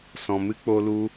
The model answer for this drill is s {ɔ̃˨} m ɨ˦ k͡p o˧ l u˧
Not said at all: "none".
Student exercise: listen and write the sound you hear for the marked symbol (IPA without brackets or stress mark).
ɔ̃˨